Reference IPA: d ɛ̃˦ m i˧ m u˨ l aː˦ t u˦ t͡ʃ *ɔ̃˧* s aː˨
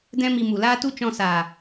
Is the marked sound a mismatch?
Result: no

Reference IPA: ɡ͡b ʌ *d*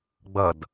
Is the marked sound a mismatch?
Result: no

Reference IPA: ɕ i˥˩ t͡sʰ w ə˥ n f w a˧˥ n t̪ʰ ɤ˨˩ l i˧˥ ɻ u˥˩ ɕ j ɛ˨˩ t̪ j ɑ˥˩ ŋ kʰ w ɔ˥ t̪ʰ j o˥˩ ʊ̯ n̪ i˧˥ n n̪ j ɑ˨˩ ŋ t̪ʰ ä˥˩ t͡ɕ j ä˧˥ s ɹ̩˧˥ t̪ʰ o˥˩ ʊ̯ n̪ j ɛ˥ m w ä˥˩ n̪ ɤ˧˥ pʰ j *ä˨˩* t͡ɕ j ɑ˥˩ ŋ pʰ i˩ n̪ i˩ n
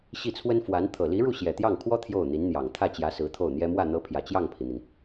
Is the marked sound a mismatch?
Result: no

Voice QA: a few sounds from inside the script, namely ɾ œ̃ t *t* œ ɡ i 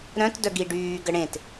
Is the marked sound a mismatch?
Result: yes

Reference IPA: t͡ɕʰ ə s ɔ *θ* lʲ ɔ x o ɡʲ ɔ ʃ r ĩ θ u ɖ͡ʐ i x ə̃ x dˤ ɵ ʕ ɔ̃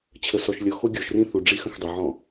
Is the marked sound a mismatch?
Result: yes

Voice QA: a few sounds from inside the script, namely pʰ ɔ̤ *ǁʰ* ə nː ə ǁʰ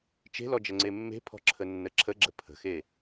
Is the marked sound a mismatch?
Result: no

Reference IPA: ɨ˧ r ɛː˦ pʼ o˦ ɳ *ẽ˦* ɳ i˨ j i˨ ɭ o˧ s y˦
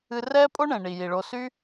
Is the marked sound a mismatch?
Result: yes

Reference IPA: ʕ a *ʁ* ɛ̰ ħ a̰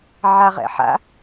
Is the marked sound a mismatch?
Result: no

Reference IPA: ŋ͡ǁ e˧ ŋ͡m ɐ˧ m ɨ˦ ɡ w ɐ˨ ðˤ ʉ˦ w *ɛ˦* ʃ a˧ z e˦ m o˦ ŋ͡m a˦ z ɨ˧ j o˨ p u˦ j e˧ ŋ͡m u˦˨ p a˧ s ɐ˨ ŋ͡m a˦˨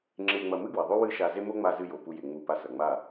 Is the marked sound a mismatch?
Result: yes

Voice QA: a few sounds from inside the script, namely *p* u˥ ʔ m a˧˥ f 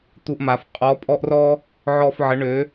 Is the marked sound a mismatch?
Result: yes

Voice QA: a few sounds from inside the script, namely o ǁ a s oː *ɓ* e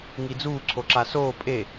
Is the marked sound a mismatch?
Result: yes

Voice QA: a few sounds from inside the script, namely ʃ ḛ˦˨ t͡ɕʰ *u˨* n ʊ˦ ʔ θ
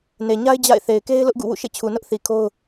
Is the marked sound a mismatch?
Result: no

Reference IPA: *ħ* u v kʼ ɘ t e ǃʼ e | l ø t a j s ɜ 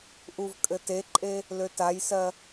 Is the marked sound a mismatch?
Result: yes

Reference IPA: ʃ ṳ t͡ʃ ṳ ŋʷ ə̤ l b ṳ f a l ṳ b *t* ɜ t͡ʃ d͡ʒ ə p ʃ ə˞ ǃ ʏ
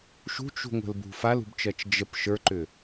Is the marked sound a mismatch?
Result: yes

